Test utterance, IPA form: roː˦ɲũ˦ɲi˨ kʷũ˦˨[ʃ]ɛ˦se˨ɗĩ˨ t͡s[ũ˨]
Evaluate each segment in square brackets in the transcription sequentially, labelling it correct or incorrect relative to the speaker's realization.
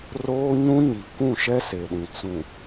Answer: correct, correct

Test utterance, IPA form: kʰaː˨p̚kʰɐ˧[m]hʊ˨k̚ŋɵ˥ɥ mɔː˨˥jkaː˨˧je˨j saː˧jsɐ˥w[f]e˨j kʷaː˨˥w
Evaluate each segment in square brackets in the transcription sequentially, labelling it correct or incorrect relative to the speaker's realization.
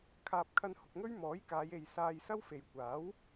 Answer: incorrect: n, correct

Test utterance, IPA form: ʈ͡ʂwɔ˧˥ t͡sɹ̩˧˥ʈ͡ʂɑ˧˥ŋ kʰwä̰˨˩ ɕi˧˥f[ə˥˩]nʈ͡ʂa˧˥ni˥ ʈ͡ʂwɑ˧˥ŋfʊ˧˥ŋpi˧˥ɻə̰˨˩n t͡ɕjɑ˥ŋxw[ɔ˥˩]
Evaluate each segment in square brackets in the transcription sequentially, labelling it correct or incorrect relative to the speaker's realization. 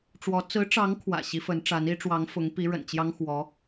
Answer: incorrect: ə˧˥, incorrect: ɔ˧˥

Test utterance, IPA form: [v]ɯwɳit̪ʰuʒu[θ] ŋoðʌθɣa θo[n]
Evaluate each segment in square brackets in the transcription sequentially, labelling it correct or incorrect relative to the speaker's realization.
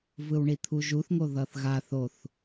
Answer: correct, correct, incorrect: θ

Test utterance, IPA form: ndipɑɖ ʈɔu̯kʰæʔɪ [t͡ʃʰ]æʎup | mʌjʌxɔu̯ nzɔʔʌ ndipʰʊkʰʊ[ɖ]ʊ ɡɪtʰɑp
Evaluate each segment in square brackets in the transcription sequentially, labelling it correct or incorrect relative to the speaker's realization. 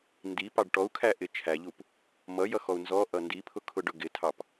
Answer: correct, correct

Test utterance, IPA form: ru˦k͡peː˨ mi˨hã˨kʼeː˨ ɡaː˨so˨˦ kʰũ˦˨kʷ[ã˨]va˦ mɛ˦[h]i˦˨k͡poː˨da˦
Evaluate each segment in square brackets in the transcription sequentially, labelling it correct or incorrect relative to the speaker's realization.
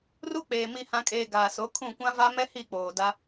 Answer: incorrect: ã˦, correct

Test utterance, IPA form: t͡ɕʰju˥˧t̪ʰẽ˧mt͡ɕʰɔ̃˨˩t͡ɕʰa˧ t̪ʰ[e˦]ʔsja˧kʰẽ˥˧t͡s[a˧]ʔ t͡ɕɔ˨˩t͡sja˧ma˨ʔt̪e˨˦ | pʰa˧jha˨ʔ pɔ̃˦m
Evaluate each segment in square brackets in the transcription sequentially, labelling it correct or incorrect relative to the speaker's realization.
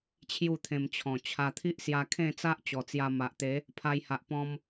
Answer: incorrect: i˦, incorrect: a˦

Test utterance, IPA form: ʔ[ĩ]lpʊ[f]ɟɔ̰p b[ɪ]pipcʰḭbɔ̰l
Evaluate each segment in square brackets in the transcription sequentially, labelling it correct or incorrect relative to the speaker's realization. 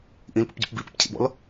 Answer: correct, incorrect: p, incorrect: i

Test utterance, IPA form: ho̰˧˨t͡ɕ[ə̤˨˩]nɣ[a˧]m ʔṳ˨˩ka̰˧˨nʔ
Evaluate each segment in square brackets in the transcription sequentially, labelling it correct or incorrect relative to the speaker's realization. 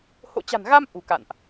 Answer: incorrect: a̤˨˩, correct

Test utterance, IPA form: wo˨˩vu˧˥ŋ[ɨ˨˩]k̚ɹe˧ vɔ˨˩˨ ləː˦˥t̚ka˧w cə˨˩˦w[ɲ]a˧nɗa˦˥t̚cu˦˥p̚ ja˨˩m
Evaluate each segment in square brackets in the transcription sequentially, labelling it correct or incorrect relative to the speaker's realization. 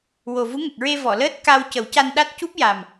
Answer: incorrect: ə˨˩, incorrect: c

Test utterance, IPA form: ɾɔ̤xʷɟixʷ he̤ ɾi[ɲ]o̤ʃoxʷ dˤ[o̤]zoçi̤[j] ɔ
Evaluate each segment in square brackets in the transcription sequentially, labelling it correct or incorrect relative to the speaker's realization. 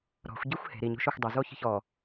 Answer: correct, incorrect: o, incorrect: ç

